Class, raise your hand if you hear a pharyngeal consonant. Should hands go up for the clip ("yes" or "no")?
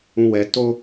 no